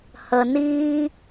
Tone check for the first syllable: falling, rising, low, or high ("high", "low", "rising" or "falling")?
low